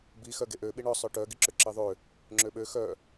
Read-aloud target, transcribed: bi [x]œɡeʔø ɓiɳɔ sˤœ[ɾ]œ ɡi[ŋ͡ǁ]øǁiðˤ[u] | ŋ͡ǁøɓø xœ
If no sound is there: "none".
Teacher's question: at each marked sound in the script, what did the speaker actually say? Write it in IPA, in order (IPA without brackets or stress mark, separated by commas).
x, ʈ, ǁ, ø